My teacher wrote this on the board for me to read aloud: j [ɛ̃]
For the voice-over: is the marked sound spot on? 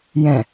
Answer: yes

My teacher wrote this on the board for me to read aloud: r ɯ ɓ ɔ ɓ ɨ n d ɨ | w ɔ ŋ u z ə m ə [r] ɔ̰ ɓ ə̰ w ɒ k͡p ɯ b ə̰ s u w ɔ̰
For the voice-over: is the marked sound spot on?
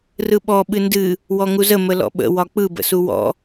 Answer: no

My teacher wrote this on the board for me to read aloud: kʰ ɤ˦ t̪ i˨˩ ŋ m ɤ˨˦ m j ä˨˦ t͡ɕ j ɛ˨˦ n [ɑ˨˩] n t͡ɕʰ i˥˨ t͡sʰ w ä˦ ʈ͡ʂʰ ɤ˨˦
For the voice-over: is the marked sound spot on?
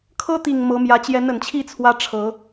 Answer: no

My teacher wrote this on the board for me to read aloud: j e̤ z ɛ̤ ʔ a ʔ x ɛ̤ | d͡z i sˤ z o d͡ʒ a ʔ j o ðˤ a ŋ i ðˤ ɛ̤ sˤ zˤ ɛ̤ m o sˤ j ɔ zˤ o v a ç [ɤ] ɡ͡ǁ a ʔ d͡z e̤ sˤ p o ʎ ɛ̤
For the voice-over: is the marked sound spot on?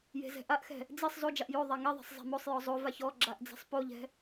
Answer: no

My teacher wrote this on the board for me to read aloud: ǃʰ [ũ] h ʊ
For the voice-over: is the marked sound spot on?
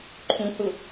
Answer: yes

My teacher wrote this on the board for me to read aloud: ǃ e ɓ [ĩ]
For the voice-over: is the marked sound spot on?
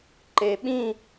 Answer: yes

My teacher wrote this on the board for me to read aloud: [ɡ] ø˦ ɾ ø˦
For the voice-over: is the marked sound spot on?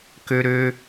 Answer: no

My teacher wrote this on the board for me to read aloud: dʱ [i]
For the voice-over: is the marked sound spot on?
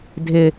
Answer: no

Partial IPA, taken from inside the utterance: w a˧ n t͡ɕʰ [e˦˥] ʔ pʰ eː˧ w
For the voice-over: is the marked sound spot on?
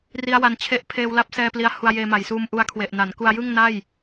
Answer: no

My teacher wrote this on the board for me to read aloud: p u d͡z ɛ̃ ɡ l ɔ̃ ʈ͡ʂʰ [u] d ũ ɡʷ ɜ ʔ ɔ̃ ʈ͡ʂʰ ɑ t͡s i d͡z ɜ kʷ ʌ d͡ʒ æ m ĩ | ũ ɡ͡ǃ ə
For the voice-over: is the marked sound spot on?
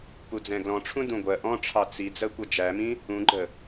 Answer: no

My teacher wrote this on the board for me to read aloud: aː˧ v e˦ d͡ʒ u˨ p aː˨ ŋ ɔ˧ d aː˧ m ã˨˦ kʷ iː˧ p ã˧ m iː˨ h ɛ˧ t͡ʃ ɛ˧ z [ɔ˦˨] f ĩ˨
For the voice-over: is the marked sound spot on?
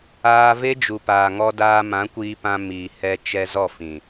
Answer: yes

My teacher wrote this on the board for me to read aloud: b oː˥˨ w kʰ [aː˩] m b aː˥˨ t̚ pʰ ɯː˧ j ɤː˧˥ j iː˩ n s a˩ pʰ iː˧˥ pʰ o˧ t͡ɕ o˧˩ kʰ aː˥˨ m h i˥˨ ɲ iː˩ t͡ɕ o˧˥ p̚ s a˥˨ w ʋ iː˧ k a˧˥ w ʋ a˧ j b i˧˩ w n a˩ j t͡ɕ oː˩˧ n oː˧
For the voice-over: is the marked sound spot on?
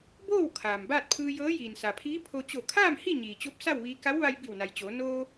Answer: yes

